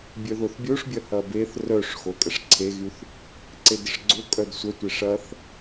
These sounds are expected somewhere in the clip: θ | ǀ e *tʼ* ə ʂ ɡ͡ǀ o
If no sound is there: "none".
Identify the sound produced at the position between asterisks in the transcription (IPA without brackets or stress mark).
d